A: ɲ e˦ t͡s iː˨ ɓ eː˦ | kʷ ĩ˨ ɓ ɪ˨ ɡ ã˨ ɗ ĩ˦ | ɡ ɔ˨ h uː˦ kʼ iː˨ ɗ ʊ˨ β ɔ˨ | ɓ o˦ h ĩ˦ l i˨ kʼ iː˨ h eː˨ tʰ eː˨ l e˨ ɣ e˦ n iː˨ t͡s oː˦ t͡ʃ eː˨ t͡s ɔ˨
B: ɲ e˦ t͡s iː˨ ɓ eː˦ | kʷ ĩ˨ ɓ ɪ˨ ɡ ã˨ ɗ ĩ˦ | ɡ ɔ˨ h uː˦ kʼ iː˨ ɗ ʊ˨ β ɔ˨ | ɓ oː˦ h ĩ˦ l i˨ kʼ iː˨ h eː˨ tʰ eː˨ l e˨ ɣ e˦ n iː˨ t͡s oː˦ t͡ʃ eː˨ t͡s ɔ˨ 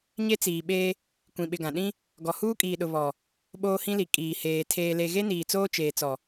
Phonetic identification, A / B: B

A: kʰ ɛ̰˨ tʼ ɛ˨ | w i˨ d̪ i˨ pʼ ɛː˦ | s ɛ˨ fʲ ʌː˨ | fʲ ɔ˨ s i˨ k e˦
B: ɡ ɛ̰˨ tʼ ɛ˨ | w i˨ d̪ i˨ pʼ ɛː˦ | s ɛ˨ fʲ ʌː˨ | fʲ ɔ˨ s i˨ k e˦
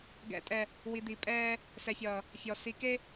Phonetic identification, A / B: B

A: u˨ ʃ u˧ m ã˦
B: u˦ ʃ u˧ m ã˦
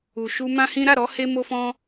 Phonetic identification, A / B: A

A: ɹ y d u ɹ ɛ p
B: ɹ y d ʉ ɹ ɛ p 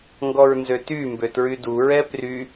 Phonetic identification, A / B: A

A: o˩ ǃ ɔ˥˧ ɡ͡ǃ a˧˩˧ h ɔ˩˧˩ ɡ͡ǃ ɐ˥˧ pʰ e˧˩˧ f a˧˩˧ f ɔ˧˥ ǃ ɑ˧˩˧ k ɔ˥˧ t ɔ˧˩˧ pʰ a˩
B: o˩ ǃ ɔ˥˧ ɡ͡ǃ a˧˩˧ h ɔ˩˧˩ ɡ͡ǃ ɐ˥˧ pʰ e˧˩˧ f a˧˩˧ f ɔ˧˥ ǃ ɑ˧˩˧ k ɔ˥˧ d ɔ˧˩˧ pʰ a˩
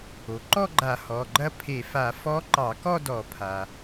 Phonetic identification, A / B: B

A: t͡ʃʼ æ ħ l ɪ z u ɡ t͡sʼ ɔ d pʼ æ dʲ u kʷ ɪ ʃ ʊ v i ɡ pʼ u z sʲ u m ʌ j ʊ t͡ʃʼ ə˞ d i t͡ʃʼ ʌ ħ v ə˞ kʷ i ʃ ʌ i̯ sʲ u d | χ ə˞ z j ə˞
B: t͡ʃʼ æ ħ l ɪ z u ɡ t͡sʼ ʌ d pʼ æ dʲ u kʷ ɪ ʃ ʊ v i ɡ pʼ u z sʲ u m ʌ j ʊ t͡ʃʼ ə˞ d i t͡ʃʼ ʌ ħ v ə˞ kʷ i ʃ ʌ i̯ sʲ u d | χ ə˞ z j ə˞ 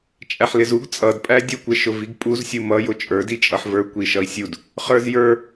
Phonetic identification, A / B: B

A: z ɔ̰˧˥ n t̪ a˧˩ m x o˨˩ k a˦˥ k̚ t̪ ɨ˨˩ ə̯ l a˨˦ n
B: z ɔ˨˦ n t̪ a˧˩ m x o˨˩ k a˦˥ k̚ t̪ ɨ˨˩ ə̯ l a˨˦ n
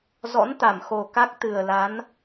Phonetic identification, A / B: A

